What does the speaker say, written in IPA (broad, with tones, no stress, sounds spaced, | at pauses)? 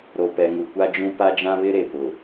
ɾ o˨ p ɛ˨ ŋ u˨ kʷ a˦ d͡ʒ ũ˦ p a˦ d͡ʒ ã˦ β ɪ˦ ɾ e˨ p ʊ˨